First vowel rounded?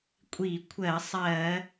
no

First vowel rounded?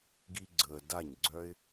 no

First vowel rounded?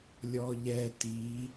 yes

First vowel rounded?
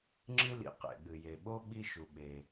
no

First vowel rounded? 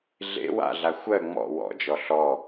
no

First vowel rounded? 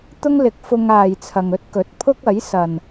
yes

